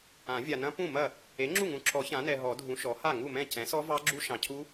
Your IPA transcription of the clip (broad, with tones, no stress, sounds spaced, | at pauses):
ã˨˩˦ vʲ a˨ n ɐ̃˦˥ p ũ˥˩ m ɐ˥˩ | e˩˥ ŋ͡ǁ u˥˩ ŋ ũ˨ ǁʰ ɔ˨˩˦ ç ã˩˥ n ɛ˨ ɦ ɔ˨˩˦ dʱ ũ˩˥ ʃ ɔ˩˥ h a˥˩ ŋ u˥˩ m ɛ̃˥˩ c ɛ̃˩˥ s ɔ˦˥ v ɑ˦˥ ɡ͡ǁ u˦˥ ʃ ɑ̃˨ cʰ u˦˥